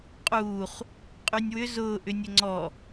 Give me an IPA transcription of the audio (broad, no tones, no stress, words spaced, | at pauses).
qʼuːχ | qʼynʲwʏ zʊː ʔʏnʲəŋ͡ǀɔ